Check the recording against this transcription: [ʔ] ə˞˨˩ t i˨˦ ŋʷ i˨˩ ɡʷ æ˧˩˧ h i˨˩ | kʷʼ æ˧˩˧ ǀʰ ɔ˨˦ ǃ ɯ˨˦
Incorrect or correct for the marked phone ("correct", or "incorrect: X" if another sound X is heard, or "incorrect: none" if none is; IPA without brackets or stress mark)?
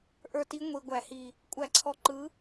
correct